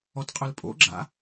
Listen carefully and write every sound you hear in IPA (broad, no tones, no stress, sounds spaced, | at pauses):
ɔ t qʼ œ l pʼ o̰ ɡ͡ǁ a̰